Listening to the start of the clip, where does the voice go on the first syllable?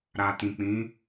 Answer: low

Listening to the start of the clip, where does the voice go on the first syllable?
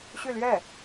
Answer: falling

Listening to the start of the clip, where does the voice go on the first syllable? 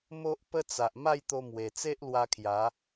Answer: high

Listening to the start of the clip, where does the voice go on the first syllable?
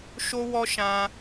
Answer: high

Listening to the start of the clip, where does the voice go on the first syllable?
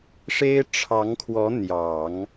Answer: high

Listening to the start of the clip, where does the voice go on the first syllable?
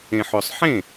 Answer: low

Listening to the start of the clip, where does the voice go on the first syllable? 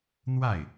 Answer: falling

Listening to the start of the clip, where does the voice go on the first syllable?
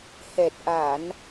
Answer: low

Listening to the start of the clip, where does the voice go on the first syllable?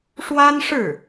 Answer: high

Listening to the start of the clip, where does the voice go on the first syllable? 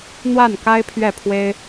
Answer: falling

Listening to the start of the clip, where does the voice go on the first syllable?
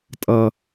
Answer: high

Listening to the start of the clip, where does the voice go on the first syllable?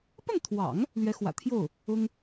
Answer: falling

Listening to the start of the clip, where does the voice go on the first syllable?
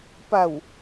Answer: low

